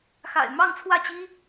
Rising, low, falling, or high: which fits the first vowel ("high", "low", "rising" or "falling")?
low